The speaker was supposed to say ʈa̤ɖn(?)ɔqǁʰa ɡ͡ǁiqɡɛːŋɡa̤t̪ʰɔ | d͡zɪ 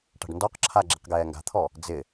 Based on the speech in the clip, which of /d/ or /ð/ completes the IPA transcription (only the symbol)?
d